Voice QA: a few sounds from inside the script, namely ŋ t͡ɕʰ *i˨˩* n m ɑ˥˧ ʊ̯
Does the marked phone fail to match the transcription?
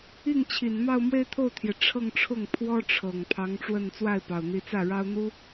no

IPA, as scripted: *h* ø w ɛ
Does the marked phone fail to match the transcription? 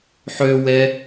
yes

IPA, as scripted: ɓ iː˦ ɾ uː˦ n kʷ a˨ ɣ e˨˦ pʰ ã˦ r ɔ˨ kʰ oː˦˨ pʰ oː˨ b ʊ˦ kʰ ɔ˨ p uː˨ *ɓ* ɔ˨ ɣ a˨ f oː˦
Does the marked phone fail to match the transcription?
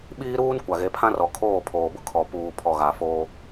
yes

